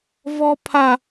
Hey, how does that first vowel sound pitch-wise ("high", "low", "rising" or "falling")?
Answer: high